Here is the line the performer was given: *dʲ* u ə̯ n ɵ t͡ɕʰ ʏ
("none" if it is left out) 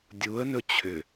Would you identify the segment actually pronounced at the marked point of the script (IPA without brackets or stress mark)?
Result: dʲ